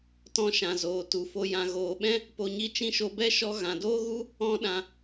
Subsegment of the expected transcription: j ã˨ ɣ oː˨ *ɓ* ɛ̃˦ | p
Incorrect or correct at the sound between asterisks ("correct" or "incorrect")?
correct